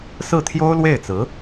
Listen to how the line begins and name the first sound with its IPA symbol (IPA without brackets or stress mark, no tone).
s